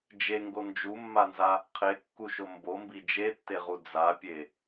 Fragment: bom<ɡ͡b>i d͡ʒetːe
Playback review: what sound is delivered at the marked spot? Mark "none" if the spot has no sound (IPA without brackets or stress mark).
b